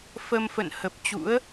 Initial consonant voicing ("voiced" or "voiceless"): voiceless